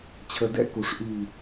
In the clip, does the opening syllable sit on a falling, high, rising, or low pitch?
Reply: low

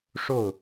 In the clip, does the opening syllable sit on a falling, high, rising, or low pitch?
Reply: falling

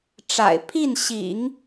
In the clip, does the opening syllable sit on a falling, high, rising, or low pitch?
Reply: low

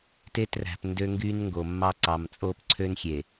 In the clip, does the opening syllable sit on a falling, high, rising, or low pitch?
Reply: high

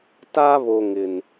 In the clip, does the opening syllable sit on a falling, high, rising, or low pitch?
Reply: high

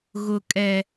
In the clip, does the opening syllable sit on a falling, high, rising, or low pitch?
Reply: high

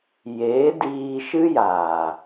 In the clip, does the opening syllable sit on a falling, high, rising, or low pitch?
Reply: rising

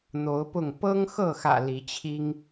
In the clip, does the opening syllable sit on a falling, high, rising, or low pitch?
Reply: rising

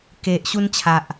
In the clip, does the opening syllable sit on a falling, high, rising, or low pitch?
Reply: low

